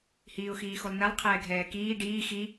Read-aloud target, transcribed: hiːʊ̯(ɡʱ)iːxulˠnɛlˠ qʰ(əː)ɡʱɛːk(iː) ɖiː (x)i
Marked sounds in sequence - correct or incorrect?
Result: incorrect, incorrect, correct, correct

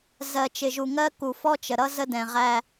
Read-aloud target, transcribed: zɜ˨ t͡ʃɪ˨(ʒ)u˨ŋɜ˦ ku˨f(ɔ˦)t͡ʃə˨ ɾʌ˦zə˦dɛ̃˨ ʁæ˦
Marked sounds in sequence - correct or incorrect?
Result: correct, correct

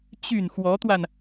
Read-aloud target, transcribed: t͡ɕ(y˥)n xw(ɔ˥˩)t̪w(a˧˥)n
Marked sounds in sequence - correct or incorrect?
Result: incorrect, incorrect, incorrect

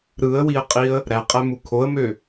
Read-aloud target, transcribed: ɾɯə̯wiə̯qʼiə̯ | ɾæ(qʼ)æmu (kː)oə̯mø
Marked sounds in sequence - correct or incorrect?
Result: correct, incorrect

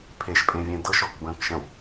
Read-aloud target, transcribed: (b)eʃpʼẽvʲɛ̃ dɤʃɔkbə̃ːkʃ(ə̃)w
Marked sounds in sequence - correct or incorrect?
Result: incorrect, correct

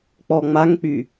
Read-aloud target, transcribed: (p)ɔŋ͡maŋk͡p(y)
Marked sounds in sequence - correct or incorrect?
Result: incorrect, correct

